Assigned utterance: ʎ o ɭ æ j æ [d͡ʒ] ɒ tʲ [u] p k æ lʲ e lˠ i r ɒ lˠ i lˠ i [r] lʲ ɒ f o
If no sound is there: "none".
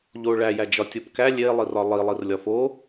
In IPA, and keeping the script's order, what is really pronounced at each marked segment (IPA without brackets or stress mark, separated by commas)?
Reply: d͡ʒ, o, r